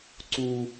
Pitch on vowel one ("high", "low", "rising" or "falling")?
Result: high